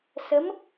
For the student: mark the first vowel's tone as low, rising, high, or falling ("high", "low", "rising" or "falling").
rising